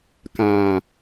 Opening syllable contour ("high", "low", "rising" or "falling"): low